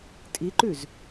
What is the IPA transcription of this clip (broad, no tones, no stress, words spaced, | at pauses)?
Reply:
tʼiǃʉz